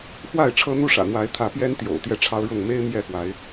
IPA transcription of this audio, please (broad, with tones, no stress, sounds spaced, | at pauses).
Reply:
f w a˥˨ ɪ̯ ʈ͡ʂʰ ɤ˦ n̪ u˦ ʂ ä̰˨˩ n̪ w a˨˦ ɪ̯ t̪ʰ ä˨˦ p j ɛ˦ n t̪ j o̰˨˩ ʊ̯ t̪ j ɛ˥˨ ʈ͡ʂʰ ɑ˦ ʊ̯ ɻ ʊ˥˨ ŋ m e˦ ɪ̯ m j ɛ˥˨ f w a˨˦ ɪ̯